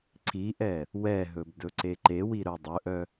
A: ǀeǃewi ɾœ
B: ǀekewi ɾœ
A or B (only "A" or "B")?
A